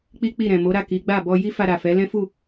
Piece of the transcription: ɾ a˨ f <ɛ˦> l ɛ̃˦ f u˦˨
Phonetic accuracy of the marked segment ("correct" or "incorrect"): incorrect